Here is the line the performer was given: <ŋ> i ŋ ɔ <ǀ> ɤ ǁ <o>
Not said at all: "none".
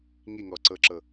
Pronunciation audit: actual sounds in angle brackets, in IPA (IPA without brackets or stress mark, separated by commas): ŋ, ǀ, ɤ